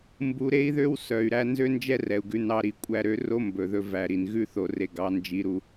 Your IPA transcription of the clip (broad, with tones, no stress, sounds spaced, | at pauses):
m b u˧ ɾ e˦ i̯ ð ø˦ w s œ˨ y̯ ɾ æ˧ n z ø˦ n d͡ʒ ɛ˦ r ɛ˨ u̯ ɡ ʉ˧ n ɑ˧ ɾ i˨ kʷʼ æ˧ ɾ ø˧ r o˦ m b ɵ˨ ð ɵ˧ v æ˨ ɾ i˨ n ɣ ʉ˦˨ θ o˨ r e˨ ɡ ɑ˨˦ n d͡ʒ i˨˦ ɾ u˧